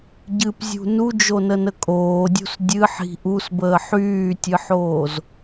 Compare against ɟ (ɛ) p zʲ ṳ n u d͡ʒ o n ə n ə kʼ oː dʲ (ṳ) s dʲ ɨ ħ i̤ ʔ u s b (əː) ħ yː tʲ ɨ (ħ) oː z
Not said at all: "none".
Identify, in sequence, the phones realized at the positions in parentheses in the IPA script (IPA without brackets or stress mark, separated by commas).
ɨ, ṳ, əː, ħ